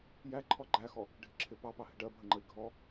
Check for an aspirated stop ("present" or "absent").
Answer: present